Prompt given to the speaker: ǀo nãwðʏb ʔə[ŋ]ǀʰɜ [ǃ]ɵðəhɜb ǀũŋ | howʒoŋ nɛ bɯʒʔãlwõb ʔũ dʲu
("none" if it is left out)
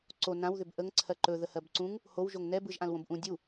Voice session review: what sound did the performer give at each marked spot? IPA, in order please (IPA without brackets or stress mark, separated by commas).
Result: ŋ, ǃ